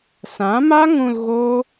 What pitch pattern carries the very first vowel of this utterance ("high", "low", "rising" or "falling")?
rising